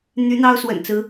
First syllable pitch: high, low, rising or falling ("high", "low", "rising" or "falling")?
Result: rising